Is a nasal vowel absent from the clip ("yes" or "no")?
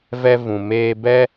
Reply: no